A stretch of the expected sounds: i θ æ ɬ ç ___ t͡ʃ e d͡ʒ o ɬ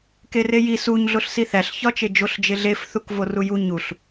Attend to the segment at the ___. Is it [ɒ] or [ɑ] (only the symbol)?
ɒ